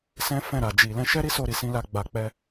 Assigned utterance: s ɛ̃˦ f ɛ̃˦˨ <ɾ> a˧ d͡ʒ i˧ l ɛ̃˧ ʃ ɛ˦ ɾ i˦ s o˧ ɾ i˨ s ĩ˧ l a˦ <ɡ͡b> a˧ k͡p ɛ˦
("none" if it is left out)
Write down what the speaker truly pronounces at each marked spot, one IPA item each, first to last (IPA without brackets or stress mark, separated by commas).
ɾ, ɡ͡b